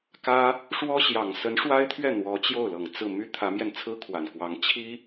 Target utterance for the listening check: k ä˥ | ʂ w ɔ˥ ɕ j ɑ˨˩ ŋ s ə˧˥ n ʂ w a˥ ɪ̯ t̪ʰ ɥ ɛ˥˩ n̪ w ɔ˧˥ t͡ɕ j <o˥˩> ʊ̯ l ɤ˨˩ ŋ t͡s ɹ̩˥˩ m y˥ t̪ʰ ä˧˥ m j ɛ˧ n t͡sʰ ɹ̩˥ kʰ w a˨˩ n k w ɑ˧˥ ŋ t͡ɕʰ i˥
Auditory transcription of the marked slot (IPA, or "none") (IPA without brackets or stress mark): o˥˩